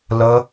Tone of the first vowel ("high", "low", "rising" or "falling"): high